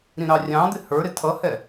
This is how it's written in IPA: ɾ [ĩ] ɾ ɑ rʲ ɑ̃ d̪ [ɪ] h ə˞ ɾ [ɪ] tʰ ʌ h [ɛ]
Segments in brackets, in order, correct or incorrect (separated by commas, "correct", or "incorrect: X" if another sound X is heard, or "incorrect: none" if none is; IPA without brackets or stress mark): correct, correct, correct, correct